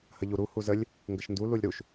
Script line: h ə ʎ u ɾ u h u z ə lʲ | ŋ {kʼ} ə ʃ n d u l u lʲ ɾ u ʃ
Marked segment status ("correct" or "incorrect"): incorrect